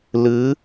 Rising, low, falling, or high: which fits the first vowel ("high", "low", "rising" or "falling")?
rising